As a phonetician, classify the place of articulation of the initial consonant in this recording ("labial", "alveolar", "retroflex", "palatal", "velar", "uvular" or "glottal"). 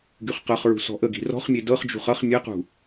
velar